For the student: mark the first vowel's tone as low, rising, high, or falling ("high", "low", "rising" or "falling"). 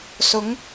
rising